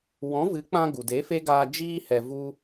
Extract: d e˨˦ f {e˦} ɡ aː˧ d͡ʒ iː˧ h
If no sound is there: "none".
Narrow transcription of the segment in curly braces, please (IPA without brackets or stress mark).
e˦